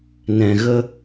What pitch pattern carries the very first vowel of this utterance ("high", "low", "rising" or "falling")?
low